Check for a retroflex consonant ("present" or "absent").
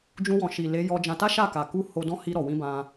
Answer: absent